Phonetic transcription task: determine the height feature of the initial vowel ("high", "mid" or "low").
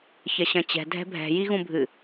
low